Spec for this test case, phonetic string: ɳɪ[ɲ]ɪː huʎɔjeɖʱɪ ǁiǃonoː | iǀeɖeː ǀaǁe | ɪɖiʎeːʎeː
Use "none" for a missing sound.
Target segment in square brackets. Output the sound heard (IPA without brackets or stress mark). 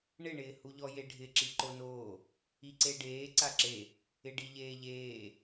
ɳ